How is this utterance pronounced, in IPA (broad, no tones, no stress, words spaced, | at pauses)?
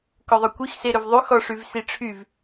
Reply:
kɵðˤɵkʷix seɾɵvðˤy xɔʂyvsiʈ͡ʂʰyv